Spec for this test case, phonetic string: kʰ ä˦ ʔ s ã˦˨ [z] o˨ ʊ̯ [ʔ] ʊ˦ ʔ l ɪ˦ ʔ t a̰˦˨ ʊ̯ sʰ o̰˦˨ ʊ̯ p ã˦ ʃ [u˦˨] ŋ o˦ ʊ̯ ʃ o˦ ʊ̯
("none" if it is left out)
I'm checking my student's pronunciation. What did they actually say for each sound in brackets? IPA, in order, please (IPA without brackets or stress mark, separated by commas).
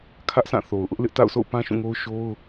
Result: θ, ʔ, ũ˦˨